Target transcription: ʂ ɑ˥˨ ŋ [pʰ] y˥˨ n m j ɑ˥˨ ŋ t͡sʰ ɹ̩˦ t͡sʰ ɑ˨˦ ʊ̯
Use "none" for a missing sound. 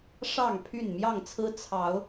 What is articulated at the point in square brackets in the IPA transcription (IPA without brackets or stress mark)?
pʰ